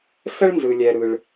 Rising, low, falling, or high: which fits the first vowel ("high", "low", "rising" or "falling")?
high